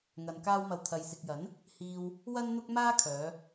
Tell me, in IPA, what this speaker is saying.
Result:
ŋ ɐ˨ n k aː˥ w m ɐ˧ w t̪ʰ ɐ˨ j s ɪ˨ k̚ j ɐ˨˥ n | h iː˧ w | w ɐ˥ n n̪ ʊ˥ k̚ m aː˥ kʰ œː˨˧

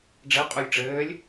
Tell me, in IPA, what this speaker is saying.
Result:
ɖ͡ʐ ɛ qʼ u lʲ ʈ͡ʂ ɘː lʲ

